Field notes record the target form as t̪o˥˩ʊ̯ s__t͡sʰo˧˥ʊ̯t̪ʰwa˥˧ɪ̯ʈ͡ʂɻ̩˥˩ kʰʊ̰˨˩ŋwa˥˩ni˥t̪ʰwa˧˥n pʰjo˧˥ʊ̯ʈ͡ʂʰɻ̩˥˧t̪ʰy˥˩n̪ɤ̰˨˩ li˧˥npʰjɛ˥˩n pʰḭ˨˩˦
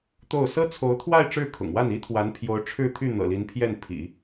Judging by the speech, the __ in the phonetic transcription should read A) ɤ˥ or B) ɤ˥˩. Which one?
A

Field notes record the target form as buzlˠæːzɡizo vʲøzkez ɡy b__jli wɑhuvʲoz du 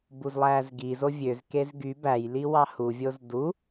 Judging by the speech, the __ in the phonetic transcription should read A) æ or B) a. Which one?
A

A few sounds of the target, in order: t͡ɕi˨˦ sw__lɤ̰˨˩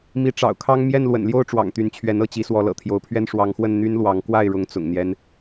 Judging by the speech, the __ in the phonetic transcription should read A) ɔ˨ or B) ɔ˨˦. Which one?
B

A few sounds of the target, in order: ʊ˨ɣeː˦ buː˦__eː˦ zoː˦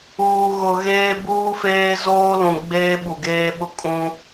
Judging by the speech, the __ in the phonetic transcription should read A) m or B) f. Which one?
B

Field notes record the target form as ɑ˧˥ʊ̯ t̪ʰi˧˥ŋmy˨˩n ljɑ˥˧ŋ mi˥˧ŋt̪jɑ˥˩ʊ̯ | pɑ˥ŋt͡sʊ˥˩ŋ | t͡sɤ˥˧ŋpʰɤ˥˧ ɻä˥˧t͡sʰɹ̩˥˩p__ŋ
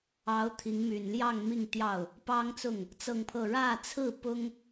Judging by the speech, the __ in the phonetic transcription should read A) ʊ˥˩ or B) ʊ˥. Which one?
B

